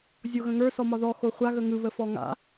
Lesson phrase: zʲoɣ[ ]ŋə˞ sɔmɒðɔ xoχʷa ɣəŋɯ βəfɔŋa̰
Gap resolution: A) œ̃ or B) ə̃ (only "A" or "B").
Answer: B